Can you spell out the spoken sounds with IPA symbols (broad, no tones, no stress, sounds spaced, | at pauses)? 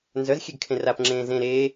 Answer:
n z œ z xʲ e ɡ kʰ ẽ r a p ŋ͡ǁ ẽː z ẽ ɾ eː